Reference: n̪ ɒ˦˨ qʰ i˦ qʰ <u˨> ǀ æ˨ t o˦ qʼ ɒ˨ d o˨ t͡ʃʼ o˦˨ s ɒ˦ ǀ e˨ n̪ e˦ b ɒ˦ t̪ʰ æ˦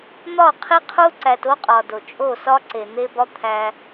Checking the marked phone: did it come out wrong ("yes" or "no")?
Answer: yes